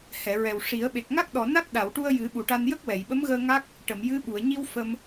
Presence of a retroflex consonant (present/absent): present